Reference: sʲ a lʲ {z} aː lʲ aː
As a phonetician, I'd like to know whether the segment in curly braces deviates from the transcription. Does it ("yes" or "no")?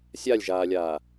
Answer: yes